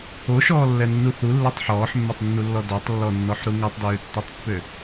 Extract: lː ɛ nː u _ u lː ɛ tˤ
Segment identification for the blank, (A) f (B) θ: B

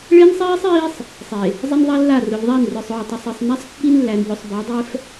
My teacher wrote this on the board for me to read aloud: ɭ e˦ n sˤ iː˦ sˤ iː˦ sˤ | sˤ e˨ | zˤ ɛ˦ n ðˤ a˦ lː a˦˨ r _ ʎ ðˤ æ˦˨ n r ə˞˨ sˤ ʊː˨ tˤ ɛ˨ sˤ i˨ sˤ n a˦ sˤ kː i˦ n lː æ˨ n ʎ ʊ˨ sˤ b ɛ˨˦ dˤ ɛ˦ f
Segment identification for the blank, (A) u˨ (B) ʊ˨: B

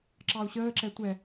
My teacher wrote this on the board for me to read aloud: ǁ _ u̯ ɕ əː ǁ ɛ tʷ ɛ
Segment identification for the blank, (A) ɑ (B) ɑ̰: A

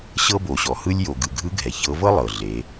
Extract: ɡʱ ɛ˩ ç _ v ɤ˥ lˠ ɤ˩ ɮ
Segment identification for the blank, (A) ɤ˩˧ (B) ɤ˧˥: B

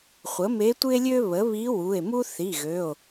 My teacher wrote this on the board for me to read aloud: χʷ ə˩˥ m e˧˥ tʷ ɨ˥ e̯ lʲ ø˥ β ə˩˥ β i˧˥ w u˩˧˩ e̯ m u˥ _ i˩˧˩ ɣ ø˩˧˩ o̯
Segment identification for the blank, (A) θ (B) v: A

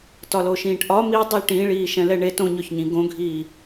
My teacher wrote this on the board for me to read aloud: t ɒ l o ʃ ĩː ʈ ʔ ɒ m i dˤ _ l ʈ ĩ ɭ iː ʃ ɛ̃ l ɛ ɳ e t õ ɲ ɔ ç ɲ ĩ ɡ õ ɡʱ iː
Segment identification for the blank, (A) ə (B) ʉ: B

